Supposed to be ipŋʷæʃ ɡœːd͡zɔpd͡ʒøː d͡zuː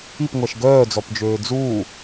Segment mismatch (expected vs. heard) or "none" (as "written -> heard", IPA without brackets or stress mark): none